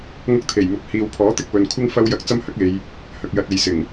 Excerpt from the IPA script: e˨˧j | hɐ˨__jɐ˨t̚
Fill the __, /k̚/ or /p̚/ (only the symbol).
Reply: k̚